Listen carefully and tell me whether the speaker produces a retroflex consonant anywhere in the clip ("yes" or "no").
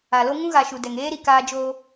no